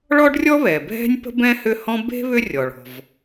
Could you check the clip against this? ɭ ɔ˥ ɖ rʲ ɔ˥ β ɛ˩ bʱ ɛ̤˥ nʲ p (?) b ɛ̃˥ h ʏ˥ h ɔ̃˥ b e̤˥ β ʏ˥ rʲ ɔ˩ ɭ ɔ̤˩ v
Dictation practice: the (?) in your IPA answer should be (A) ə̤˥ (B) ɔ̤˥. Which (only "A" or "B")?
A